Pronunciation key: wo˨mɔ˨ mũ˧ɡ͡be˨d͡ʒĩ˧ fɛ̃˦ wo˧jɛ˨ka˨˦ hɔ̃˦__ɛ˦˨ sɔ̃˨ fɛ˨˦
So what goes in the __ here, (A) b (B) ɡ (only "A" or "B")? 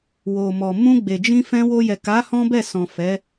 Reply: A